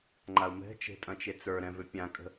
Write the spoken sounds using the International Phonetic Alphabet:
ŋ͡ǃ a u̯ m ɛ̤ t͡ʃ e̤ tʼ ɐ̃ t͡ʃ e t͡s ə˞ ɾ ɛ̃ v ʏ pʲ ã kʼ ə̤

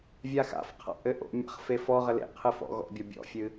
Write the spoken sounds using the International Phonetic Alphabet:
vʲ a x a̰ f qʰ a̰ ʔ ɘ ʔ o̰ mʲ a̰ χ f e f ɔ ʁ ɘ l ḛ qʰ ɨ f ɔ̰ ɣ ɔ̰ bʲ ɔ bʲ ɔ̰ fʲ ɨ

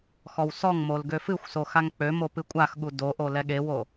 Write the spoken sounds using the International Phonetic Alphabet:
x ɔ w s ɔ ŋ m o l ɡ ø f ɨ xʷ s o x a ŋ k͡p ø m o p ɨ kʷʼ a x ɠ u d o ʔ o l ɛ ɠ e w o

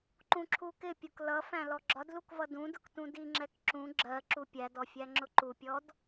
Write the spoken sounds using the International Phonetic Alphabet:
ǃ ũ ǁʰ u k ɪ pʲ u k l ʌ f æ̃ l ɔ ɡ͡ǁ ɒ d l u k v ʌ d ũ d ʊ k t ũ d i ŋ͡ǁ ɛ k ǁ ũ ɡ͡ǁ ɜ ǁ u pʲ æ d ɔ fʲ æ ŋ͡ǁ ʊ ǃ u pʲ ɔ d

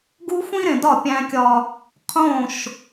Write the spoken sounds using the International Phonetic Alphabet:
ɡ u˦ xʷ ĩ˦ ɾ ẽ˨ d ɒ˦˨ pʲ æ̃˦ kʲ ɒ˦ | qʰ õ˦˨ ʃ

